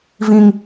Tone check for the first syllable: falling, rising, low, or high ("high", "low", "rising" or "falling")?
high